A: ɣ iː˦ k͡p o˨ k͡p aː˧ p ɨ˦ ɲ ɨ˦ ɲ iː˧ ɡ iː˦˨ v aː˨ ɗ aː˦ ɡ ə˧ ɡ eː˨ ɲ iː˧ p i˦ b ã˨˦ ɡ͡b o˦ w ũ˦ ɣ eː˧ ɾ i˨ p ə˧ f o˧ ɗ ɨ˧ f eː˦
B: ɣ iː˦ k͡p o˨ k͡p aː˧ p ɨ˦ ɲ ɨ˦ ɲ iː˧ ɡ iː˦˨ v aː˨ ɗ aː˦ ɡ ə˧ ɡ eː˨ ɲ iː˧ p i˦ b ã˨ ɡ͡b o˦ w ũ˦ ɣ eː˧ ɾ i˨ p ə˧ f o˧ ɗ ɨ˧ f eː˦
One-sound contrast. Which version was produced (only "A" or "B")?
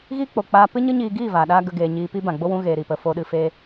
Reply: B